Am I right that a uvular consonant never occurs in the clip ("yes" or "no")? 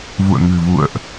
yes